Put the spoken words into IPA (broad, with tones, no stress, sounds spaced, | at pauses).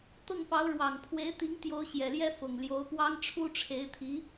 t̪ ɤ˥˩ ŋ p ɑ˧˥ ʊ̯ ɻ w ɑ˨˩ ŋ pʰ w e˧˥ ɪ̯ t̪ i˧˥ ŋ t̪ j o˧˥ ʊ̯ ɕ j ɛ˨˩ l j ɛ˥ f ʊ˨˩ ŋ l j o˧˥ ʊ̯ p w ɑ˥ ŋ ʈ͡ʂʰ u˥ ʈ͡ʂʰ e˧˥ ɪ̯ t̪ʰ i˧˥